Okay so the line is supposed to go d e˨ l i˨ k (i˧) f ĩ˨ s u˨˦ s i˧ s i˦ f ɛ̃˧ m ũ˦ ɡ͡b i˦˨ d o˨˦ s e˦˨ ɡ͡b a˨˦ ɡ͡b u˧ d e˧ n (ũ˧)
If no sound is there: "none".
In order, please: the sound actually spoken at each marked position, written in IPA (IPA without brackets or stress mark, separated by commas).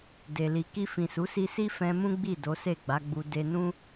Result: i˧, ũ˦